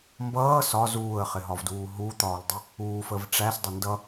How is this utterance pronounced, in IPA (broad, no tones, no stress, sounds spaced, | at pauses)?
m b ʌː s ɒ z uː ə̯ χ ɪ ɦ ɒ v d uː ɦ u t̪ ɒː l dˤ ɪ | uː f ə v ʈ͡ʂ æ s dˤ ɪ n d ʌ